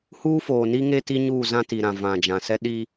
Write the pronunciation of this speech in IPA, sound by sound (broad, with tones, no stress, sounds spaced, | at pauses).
h uː˦ f oː˨ n i˦ ŋ e˦ t i˦ ɲ uː˦˨ z ã˦ t i˨ ɾ ã˨ v ã˨ d͡ʒ ã˨ s ɛ˦ ɗ i˦